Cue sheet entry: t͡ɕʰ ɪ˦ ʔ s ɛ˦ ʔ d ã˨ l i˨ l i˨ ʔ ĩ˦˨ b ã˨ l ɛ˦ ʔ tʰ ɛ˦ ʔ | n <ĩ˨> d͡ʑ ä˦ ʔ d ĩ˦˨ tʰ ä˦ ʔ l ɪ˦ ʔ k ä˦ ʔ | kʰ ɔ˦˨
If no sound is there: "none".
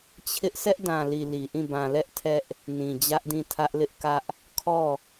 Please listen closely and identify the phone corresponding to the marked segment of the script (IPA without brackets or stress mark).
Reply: ĩ˨